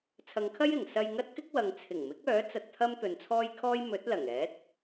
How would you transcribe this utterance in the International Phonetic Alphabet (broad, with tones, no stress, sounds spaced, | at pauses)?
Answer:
t͡sʰ ɐ˨˧ ŋ kʰ ɐ˥ j ɪ˨˩ ŋ s ɐ˧ j ŋ ɐ˥ t̚ k ɪ˥ k̚ w ɐ˨ ŋ t͡sʰ ɪ˨˩ ŋ m ɪ˨˥ k̚ œː˨˥ t͡s ɐ˧ t̚ t̪ʰ ɐ˥ m t̪ ɵ˨ n t͡sʰ ɔː˥ j kʰ ɔː˥ j m ɵ˨˥ t̚ l ɐ˨˩ ŋ ɛː˨˥ t̚